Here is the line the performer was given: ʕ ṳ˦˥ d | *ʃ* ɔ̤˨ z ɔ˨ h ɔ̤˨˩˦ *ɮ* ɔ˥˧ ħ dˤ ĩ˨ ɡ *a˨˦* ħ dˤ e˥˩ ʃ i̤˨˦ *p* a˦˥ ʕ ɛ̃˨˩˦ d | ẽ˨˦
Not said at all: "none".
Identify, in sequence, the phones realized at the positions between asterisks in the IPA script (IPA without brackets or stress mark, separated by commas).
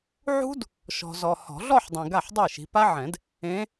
ʃ, ɮ, a˥˩, p